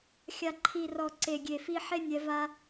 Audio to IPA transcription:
xʲ a˨ ǃʰ i˨ r ɔ˨ ǀ e˨ ɡʲ e˨ f i˧ ħ e˦ nʲ ɛ˧ v a˦

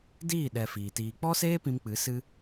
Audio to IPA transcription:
d iː˦˨ ɗ ɛ˧ f iː˨ t iː˧ k͡p ɔ˦ s eː˦ p ĩ˧ m k͡p ɨ˨˦ s ɨ˦

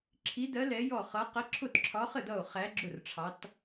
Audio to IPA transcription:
ǁʰ i˧˥ d ɜ˧˥ l ɛ˧˥ j ɔ˥˨ χ ʌ˧˥ q ə˧˥ ǁʰ ʊ˥˨ t ǁʰ ɒ˧˥ χ ə˥˨ d ʌ˥˨ o̯ χ æ˧˥ ɡ͡ǁ ʊ˥˨ r ʈ͡ʂʰ ɑ˧˥ t

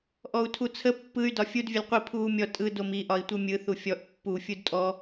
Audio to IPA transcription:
ʔ ɔ u̯ tʰ u t͡sʰ ə pː ɯ y̯ d ɒ fʲ u d vʲ ə l qʷ i pʰ uː mʲ ɔ tʼ ɯ d o m i ʔ ɒ i̯ tʷ ɯ mʲ ɯ θ u fʲ ɔ ʔ pː u fʲ u d tʼ ɔ

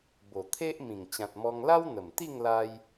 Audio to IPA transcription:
b o˨˩ t̪ʰ e˦ ʔ m ĩ˨˩ ŋ t͡ɕ ã˨ t̚ m ɔ˧ ŋ l a˦ w n̪ ə˨˩ m t̪ i˥˧ ŋ l a˧ j

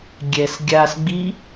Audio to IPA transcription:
ɡʲ ɛ s ɡʲ a s ɡ͡b i

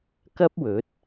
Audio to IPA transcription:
k ɐ˥ p̚ w ɵ˨˥ t̚

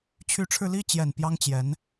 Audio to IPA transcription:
t͡ɕʰ y˧˥ ʈ͡ʂʰ ɻ̩˧ l i˥˩ t͡ɕ j ɛ˨˩ n p j ɑ˥ ŋ t͡ɕ j ɛ˧˥ n

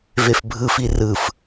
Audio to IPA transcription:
v e f bʱ ɯ f i r ɯ f

